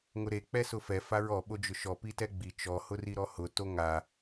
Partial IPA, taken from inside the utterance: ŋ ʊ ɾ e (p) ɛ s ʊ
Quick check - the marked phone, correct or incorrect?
incorrect